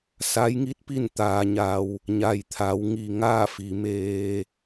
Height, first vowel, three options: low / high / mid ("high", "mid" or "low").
low